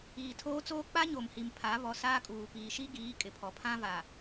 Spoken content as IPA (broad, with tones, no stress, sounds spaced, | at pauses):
iː˨ tʰ oː˦ t͡s oː˦ k͡p a˦ ɲ o˨ m h i˨ m pʰ a˨˦ β ɔ˨ s aː˦ kʼ uː˨ p iː˨ ʃ i˦ ɡ iː˨˦ kʼ ɪ˨ pʰ ɔ˨ pʰ ã˦ v a˨